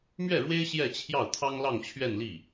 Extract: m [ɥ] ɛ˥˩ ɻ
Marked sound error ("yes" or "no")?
no